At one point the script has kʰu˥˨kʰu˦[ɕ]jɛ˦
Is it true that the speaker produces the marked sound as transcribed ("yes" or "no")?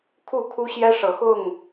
yes